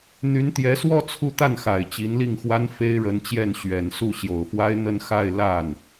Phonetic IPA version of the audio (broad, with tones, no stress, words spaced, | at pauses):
n̪y˧˥nt̪jɛ˧˥swɔ˥˧ t͡sʰu˥˧t̪a˥˩nxa˨˩ɪ̯ t͡ɕi˧˥nli˥˩ŋxwa˥n fe˥ɪ̯ɻə˧˥nt͡ɕjɛ˥˩n ɕɥɛ˨˩n su˥˩ɕjo˨˩ʊ̯fwa˥ɪ̯ n̪ə˥˧n xa˥˧ɪ̯la˥˩n